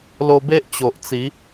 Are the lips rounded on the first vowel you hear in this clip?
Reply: yes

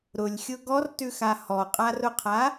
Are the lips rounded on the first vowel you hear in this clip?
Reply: yes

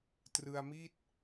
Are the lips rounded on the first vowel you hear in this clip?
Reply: no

